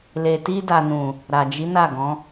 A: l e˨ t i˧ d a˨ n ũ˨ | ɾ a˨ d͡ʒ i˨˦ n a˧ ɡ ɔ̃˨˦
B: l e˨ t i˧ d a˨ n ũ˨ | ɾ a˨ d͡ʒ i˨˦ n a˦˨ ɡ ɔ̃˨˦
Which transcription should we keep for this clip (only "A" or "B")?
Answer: B